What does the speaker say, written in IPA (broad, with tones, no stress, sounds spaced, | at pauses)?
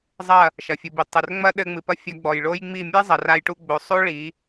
zˤ ɐ˦˨ | ʃ ɐ˨ fʲ u˨ b i˨ tˤ ɘ˨ r ŋ͡m ɐ˦ ɗ ɘ˧ ŋ͡m ɨ˨ p ɐ˦ fʲ ɐ˧ ɡ͡b ɔ˨ j ɭ o˦ j ŋ͡m i˦˨ mʲ ɛ˦ zˤ ɐ˨ r a˧ j ʈ u˧ ɡ͡b o˨ sˤ o˦ ɭ i˨˦